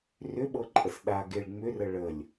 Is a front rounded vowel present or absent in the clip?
present